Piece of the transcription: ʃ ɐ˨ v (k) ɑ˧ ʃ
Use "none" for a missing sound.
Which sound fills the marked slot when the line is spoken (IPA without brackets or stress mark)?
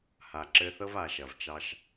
t͡ʃ